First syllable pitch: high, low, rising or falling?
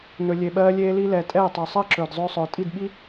low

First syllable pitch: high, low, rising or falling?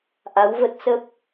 rising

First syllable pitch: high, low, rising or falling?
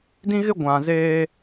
high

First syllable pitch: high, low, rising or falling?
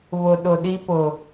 low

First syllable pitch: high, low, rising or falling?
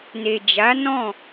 low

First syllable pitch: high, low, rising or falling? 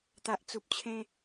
low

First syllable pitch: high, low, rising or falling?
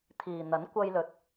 low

